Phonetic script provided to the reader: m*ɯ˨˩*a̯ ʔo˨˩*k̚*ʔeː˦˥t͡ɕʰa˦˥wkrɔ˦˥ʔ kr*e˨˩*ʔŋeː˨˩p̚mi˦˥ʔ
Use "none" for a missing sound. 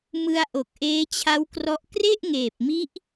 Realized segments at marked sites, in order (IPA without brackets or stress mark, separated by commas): ɯ˧, k̚, e˥˩